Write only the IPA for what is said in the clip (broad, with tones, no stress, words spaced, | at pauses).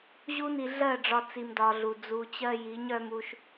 ʑu˦ni˧ɮɜ˦˨ɖ͡ʐɒ˧ t͡si˧mdɒ˧ɮu˨ d͡zu˨t͡ɕɜ˧ji˨˦ɲ œ˧mu˧ʃ